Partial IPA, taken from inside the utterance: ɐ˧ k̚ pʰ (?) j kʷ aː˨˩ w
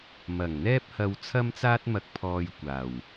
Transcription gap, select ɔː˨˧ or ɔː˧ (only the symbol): ɔː˧